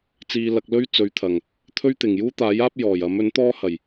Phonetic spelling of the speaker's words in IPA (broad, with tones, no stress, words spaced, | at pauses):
t͡siː˧ lɐ˧k̚lɵ˥ɥ t͡sɵ˨˧ɥt̪ʰɐ˨˩ŋ | t̪ʰɵ˥ɥt̪ɪ˨˩ŋ juː˥t̪aː˨˥jaː˥p̚ jɔː˨˩jɐ˨˥m ɵ˨˥nt̪ɔː˥hɐ˨˩j